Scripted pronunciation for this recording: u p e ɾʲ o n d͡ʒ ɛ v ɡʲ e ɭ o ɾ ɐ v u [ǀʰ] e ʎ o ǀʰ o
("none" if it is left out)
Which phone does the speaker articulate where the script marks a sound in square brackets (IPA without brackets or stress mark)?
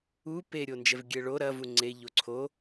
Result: ŋ͡ǀ